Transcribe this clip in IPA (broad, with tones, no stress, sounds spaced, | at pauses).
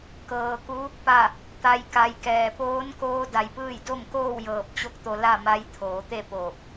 k ɤː˩ k u˧˥ | p a˧˩ | t̪ a˩ j k a˩ j k ɛː˩ p oː˧˥ n k oː˧˥ d a˧˩ j p ɯː˥˨ j d o˥˨ m k oː˥˨ w j ɤː˧˩ p̚ t͡ɕ o˥˨ k̚ t̪ o˧ l a˥˨ m a˧˥ j t̪ʰ oː˩˧ t̪ e˥˨ p oː˧˩ k̚